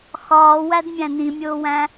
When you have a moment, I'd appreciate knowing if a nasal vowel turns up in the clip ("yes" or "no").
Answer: yes